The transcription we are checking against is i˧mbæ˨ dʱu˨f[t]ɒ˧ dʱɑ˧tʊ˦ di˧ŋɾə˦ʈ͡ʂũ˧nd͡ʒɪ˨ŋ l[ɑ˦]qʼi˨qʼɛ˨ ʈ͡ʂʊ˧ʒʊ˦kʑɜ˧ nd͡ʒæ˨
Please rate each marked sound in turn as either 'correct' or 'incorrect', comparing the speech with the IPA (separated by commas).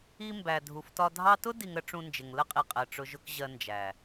correct, incorrect